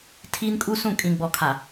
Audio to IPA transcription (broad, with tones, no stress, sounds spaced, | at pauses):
tʰ iː˦ n kʼ u˦ s ũ˦˨ kʼ ĩ˨ ɡ͡b ɔ˨ kʰ a˨